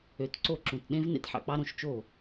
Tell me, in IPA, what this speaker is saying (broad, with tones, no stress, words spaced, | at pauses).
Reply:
ø˨˦tǀo˥˨ǁũ˧˩t ɗẽ˦˥v nḛ˥˨tħɑ̰˨˦k͡pɑ˦˥ɾõ˨˦ʃ t͡ʃo˥˨